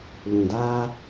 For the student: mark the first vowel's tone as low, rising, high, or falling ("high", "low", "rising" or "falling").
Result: low